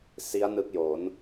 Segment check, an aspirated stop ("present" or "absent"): absent